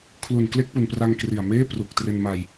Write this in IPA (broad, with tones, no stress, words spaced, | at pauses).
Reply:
kʰlu˨˩nkle˥˩k̚pu˨˩npra˧ŋ kri˨˩a̯meː˥˩ pru˨˩k̚ tre˧nma˧j